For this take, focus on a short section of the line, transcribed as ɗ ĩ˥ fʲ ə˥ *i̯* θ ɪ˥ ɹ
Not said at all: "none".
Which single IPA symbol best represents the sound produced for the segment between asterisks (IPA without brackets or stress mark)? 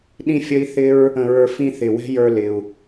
i̯